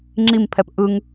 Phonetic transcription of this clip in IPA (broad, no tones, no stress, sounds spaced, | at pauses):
ŋ͡ǁ i m pʰ ɛ p ʔ ɯ ŋ